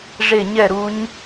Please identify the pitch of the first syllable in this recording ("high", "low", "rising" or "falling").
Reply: falling